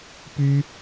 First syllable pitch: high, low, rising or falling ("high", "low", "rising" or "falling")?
high